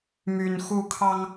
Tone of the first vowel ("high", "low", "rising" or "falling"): high